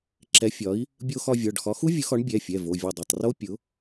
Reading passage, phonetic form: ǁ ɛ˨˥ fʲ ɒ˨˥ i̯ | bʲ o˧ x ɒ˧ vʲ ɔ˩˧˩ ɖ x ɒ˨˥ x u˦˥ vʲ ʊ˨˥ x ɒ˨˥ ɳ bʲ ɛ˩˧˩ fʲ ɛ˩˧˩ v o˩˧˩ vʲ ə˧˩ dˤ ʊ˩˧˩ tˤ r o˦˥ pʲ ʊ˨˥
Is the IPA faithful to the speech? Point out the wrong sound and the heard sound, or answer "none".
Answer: none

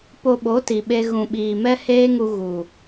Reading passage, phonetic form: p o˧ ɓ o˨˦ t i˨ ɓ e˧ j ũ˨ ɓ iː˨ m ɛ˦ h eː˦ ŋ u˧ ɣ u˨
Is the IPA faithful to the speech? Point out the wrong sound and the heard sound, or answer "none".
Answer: j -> ɣ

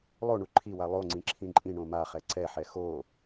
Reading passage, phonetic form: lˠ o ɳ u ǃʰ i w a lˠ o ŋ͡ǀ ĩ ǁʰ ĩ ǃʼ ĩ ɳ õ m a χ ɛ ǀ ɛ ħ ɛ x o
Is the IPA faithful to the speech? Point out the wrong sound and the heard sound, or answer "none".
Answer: none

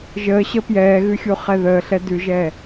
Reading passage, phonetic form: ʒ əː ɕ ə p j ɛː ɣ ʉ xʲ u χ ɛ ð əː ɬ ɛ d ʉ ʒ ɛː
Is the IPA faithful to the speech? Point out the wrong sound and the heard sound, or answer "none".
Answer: none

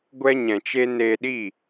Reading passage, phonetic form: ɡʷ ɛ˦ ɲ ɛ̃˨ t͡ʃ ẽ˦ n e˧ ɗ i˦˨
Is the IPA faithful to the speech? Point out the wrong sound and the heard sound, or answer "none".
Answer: ẽ˦ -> e˦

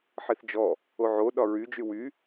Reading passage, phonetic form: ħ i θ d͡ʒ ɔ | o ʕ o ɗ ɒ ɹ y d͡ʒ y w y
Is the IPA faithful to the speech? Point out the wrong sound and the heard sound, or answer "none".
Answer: none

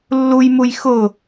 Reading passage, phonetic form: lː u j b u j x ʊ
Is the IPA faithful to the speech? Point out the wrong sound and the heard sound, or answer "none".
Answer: b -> m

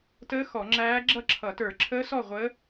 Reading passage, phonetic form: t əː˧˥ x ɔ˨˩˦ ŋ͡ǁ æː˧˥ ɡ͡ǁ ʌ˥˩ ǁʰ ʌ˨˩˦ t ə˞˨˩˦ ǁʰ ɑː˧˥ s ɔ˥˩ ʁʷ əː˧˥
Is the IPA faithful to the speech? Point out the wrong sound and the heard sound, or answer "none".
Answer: ɑː˧˥ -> əː˧˥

